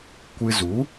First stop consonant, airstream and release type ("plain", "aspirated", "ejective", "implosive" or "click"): plain